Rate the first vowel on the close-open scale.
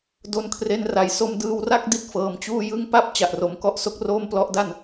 mid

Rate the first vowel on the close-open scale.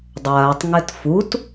open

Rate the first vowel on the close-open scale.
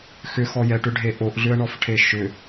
close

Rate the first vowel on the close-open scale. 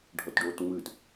mid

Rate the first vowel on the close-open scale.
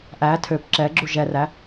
open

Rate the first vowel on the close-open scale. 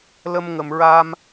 mid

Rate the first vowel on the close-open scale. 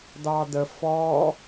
open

